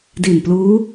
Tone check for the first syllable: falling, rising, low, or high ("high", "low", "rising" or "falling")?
low